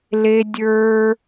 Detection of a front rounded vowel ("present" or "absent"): absent